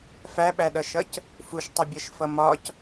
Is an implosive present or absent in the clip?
present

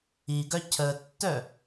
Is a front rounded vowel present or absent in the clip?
present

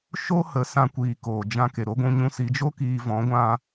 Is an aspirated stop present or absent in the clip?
absent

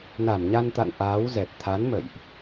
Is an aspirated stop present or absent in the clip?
present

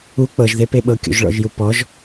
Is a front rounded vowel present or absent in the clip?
absent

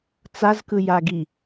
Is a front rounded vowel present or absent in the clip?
absent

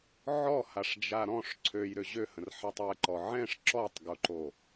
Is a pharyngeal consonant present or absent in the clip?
present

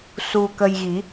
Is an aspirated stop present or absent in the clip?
absent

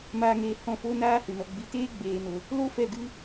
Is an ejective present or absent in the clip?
absent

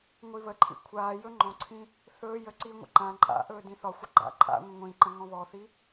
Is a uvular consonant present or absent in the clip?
absent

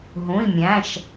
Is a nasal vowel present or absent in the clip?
present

